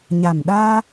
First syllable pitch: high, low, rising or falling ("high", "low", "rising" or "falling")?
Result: low